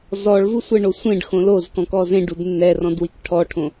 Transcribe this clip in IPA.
z ɔ ɭ v u sʷ ɛ ɳ o sʷ ẽ ɖ x õ l o z k ɔ̃ k ɔ z ẽ ɖ u d nː ɛ r ɔ̃ d w i k ʈʰ ɔ ʈʰ õ

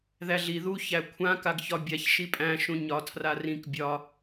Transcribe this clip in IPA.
ð æ ɮ i ð u ç æ kʷʰ ã k a ɡ ç ɒ bʲ a ç ʃ i pʼ æ̃ ʃ ũ ɲ ɒ tʰ r a r ĩ k bʲ ɒ

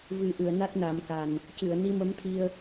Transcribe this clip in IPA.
v ɨ˨˩ ʔ ɨ˨˩˨ ə̯ n a˦˥ t̚ n a˨˩˦ m k a˨˩ n | c ɨ˨˩˨ ə̯ n i˧ m ə˧˥ m t̪ʰ i˧ ə̯

